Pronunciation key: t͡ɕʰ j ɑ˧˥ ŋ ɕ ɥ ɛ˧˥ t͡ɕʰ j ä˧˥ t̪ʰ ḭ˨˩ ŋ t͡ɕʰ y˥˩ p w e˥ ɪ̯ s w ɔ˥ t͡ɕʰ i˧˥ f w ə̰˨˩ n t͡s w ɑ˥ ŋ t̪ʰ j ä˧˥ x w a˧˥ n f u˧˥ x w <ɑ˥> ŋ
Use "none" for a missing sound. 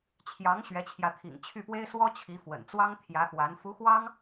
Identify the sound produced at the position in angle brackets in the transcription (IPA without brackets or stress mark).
ɑ˥